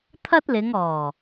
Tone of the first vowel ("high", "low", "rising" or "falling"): high